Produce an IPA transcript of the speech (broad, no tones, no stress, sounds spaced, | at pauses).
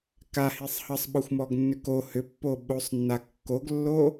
k a h i sˤ h ʌ sˤ ɓ ɔ xʷ m ɔ ɡ nː ʏ k o h ʏ pː o ɓ o sˤ nː a kː o ɡ lː o